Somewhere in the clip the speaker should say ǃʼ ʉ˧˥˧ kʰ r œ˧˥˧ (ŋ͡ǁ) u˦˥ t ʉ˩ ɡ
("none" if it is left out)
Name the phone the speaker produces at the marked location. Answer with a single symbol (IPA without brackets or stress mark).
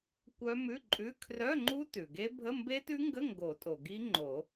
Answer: ŋ͡ǃ